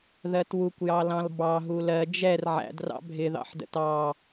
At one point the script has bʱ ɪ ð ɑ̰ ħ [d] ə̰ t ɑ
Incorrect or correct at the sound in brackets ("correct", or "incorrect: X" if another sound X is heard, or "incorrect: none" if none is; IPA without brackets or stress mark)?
correct